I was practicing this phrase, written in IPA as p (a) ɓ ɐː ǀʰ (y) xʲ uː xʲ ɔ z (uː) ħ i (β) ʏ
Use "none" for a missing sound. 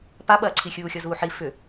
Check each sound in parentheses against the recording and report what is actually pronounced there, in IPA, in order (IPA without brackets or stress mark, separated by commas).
a, i, uː, f